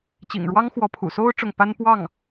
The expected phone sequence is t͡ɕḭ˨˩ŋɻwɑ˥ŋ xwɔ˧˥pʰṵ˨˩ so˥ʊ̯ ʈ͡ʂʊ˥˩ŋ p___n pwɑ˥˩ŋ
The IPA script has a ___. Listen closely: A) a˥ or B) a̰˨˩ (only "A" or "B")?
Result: A